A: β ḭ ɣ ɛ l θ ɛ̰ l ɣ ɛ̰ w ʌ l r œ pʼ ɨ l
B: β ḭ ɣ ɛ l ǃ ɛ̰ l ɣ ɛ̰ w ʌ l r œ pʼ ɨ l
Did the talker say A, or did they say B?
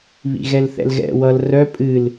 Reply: A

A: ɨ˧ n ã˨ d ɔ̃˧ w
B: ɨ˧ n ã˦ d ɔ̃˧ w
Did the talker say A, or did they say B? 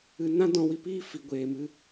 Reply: B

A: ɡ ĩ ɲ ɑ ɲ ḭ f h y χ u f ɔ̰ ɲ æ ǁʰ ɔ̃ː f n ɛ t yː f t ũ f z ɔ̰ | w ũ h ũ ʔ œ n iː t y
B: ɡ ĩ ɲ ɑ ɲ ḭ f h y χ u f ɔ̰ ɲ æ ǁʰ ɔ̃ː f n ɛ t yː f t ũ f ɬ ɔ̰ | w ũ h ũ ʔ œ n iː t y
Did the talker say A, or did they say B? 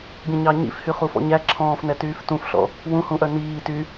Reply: B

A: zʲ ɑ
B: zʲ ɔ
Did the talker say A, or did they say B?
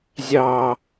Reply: A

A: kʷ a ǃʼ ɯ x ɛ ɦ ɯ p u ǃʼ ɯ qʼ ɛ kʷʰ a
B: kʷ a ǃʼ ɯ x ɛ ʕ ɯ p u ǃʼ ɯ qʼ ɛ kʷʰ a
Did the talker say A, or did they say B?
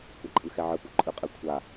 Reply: B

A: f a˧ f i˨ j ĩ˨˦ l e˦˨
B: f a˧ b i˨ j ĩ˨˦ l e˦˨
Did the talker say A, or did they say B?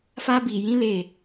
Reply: B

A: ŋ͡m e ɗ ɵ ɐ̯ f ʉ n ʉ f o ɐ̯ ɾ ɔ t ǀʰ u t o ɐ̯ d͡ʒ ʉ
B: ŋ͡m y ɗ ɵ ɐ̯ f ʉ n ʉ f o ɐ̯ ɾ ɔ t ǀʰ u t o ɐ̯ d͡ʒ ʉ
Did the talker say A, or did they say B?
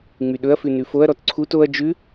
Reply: B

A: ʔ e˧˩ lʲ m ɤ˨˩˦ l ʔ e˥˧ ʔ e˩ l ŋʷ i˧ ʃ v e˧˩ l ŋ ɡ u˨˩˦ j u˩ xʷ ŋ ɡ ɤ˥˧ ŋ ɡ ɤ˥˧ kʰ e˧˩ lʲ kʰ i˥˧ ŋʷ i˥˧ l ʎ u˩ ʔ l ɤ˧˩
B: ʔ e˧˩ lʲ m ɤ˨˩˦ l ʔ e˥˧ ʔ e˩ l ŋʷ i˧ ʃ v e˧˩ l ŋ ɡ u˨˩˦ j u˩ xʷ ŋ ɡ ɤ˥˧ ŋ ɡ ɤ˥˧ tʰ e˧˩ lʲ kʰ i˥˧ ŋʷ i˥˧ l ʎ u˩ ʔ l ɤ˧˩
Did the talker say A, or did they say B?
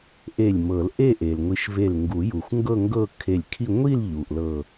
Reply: A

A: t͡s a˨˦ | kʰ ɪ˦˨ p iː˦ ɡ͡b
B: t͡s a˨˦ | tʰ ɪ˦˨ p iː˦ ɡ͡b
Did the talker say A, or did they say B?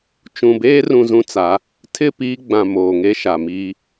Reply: B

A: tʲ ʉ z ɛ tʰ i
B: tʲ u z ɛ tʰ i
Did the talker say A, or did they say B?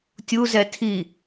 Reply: B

